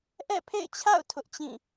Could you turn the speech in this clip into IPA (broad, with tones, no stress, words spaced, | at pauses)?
ʔɛ̰˦˨pʰḛ˦˨ɪ̯t͡ɕʰa̰˦˨ʊ̯ tʰʊ˦ʔt͡ɕĩ˦˨